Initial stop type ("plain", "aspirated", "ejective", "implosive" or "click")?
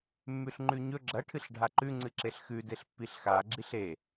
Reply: click